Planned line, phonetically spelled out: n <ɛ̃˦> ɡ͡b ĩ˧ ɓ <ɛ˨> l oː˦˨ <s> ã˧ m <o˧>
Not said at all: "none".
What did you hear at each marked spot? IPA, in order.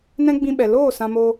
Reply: ɛ̃˦, ɛ˨, s, o˧

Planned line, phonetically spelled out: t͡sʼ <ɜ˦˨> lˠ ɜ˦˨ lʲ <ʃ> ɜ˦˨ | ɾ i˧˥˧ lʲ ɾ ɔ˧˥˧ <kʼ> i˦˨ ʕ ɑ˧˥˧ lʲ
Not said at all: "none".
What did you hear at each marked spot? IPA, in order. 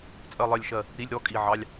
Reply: ɜ˦˨, ʃ, kʼ

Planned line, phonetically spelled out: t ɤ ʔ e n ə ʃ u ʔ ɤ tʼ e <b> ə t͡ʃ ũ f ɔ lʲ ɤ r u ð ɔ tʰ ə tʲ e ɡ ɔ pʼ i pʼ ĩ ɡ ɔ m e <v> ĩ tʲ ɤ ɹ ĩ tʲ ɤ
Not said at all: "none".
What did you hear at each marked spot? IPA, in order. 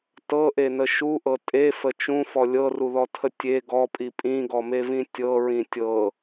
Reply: f, v

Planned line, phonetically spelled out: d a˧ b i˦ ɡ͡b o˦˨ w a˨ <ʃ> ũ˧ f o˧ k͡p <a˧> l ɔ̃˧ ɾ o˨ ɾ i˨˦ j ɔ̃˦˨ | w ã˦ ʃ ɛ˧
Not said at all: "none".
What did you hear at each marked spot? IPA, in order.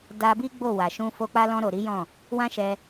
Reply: ʃ, a˦

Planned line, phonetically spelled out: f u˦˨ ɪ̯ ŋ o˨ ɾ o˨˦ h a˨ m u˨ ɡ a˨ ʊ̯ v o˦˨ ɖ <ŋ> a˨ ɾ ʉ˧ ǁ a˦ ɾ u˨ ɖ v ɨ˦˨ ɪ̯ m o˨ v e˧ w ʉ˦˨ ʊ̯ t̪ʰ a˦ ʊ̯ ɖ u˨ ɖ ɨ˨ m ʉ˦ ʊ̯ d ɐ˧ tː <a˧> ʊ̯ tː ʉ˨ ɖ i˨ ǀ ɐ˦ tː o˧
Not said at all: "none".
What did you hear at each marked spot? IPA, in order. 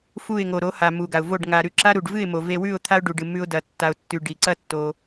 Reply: ŋ, a˧

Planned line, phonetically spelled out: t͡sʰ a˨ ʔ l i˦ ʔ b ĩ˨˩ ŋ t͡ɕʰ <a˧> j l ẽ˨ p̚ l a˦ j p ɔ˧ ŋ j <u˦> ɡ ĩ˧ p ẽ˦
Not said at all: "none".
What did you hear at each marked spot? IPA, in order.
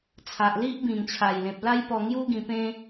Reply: a˨˩, u˦

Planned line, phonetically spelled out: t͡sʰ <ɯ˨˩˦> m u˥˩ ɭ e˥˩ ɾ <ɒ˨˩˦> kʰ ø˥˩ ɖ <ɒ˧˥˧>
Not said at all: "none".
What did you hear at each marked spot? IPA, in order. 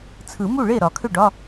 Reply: ɯ˨˩˦, ɒ˨˩˦, ɒ˧˥˧

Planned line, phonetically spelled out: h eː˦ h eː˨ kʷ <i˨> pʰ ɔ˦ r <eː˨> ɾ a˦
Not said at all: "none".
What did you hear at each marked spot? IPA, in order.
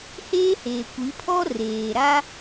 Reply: i˨˦, eː˨

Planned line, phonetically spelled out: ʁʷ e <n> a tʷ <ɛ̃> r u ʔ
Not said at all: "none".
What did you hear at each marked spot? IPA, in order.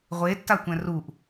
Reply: tː, ɛ̃

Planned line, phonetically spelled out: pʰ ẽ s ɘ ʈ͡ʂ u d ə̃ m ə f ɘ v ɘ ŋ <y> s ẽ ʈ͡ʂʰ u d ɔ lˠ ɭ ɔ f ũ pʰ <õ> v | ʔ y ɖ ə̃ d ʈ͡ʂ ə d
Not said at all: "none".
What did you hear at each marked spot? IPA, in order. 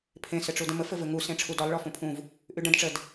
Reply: u, ũ

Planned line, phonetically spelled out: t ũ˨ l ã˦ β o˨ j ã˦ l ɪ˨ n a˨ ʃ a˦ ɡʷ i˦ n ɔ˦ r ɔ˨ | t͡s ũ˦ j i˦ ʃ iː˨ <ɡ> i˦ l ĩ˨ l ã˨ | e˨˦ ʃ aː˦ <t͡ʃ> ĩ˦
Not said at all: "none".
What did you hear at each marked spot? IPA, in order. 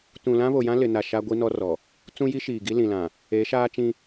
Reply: ɡ, t͡ʃ

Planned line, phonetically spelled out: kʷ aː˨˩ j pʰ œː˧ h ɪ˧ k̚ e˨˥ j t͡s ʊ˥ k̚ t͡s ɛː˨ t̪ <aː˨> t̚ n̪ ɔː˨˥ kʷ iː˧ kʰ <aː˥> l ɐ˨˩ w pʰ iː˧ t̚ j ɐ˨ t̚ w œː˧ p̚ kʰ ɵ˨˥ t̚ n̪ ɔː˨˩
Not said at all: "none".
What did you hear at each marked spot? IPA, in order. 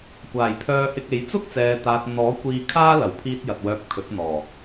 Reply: aː˨, aː˥

